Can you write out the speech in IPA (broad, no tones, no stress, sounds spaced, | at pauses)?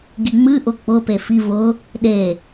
ɡ i ŋ͡m ɨ ʔ ʊ k͡p ʊ p e f i v ʊ | ɗ e